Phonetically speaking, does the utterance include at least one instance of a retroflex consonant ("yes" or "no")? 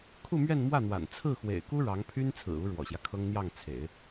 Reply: yes